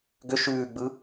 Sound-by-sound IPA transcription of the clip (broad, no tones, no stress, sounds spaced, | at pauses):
ɡ ʏ ʃ ʉː ɡ͡b ɯ